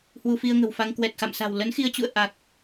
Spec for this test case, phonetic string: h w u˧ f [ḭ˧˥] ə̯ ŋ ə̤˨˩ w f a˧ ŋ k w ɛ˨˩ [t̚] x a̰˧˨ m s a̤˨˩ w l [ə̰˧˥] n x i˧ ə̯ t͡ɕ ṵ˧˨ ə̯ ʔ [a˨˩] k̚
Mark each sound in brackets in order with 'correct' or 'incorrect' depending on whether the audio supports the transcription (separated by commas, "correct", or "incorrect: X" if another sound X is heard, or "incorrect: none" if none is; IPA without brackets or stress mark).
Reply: incorrect: i˧, correct, incorrect: ə˨˦, correct